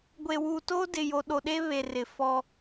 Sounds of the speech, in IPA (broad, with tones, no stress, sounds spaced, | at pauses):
ɡʷ e˨ w uː˨ t oː˦ d ɪ˨ j o˨ ɗ o˨ ɗ e˦ β e˨ r ɪ˨ f ɔ˦